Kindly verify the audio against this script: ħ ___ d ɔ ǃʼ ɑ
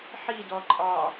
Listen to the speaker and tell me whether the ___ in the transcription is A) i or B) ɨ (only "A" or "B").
A